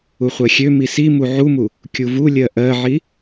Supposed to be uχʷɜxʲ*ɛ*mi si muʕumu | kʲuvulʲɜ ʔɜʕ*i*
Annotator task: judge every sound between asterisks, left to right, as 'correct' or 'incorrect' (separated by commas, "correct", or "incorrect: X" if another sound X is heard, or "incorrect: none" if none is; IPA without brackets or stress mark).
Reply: incorrect: ø, correct